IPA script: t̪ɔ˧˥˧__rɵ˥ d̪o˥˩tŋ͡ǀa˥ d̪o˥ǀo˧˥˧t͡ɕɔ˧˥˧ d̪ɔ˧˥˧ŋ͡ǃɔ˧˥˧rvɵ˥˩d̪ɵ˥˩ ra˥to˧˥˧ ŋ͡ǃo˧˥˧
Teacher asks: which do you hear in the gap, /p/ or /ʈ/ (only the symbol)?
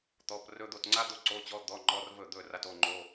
p